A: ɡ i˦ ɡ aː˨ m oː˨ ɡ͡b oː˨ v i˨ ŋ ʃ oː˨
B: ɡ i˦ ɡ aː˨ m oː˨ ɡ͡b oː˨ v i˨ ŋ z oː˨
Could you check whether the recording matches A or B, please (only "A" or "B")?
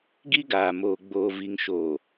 A